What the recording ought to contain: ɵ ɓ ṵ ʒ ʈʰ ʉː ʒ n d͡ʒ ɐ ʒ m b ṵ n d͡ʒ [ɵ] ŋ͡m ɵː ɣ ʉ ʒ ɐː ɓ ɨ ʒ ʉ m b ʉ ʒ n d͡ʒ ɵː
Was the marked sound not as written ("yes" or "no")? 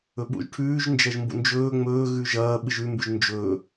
yes